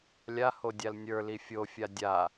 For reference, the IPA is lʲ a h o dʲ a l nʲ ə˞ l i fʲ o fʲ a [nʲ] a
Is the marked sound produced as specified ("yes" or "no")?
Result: no